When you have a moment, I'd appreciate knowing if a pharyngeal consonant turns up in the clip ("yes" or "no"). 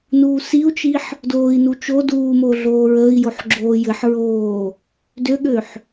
yes